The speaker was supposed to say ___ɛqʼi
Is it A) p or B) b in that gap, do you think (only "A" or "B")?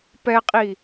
A